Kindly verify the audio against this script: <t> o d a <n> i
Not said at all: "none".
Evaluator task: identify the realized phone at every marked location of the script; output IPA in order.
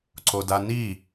ǀ, n

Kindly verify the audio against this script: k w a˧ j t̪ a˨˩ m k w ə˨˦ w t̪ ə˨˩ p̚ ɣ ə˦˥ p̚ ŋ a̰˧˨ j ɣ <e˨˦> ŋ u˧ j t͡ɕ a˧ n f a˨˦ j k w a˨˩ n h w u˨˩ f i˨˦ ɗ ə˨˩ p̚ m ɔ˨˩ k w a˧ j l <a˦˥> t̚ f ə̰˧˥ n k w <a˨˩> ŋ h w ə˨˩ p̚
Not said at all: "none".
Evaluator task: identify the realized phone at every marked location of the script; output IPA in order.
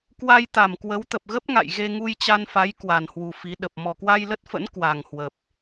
e˧, ə˦˥, a˨˩

